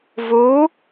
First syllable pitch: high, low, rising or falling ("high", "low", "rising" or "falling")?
rising